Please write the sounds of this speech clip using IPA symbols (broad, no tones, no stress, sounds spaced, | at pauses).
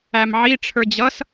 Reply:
æ m ʕ i ʈ͡ʂʰ ə˞ d͡ʑ ʌ s